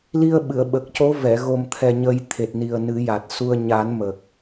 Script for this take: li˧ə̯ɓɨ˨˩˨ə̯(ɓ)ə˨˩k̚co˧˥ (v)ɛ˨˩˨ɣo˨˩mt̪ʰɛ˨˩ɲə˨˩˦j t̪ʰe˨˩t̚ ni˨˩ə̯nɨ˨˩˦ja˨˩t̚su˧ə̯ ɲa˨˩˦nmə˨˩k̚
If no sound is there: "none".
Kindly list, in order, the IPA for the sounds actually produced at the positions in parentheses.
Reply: ɓ, v

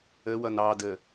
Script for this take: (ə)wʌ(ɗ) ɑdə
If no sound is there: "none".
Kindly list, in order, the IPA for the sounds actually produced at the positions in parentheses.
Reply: ə, n

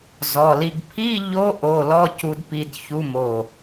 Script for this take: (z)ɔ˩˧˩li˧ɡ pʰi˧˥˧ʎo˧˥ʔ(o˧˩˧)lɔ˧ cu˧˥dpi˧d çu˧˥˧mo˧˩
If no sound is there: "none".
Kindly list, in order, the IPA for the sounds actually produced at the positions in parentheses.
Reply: z, o˩˧˩

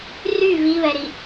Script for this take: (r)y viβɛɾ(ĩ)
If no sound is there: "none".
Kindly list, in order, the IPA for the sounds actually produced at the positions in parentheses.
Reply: r, i

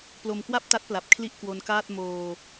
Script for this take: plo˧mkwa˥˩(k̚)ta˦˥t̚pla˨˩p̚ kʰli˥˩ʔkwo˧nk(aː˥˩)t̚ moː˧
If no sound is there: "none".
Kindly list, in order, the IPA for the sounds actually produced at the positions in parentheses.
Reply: p̚, aː˥˩

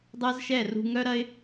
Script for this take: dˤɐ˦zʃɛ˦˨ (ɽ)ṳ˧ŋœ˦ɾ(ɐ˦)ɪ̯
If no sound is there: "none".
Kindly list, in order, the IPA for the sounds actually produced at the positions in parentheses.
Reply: r, ɐ˦

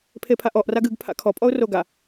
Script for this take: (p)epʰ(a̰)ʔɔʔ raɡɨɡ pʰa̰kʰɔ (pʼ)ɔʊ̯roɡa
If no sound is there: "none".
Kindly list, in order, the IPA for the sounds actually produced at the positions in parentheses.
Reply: pʰ, a, pʼ

